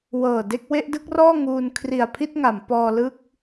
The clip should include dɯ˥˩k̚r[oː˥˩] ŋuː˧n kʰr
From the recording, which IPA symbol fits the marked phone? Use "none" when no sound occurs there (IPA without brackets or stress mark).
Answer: ɔː˥˩